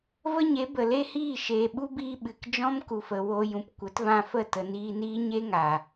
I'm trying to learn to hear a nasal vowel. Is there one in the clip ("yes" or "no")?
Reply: yes